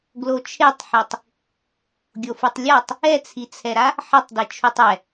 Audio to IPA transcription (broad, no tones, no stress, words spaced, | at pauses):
ɡlot͡ʃʰetˤħitˤ | ɡʲofutˤlʲatˤ | ɛt͡sʰit͡sʰɛɾa | ħʌtˤdit͡ʃʰutˤ ɛ